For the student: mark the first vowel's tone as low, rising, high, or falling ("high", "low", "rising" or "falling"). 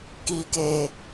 low